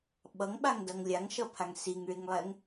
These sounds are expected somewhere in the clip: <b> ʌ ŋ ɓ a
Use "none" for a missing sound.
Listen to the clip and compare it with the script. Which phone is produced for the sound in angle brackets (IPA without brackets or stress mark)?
ɓ